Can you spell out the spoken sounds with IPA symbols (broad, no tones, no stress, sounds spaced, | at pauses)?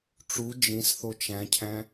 ʈ͡ʂ u d͡ʒ ĩ s θ o t͡ʃ æ̃ cʰ æ̃